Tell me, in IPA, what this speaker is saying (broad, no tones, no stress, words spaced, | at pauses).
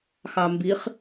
xɑmbiχ